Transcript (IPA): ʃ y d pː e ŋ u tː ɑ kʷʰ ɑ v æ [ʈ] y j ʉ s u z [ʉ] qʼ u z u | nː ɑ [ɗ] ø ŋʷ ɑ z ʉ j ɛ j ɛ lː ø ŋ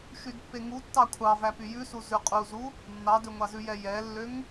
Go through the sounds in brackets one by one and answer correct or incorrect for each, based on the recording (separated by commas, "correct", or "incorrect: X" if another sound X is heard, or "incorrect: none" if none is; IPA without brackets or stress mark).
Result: incorrect: p, correct, incorrect: d